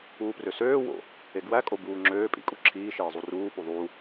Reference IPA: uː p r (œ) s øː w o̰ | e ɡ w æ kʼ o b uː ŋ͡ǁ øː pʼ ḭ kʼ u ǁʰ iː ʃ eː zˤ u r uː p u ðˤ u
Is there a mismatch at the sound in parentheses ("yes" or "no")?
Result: yes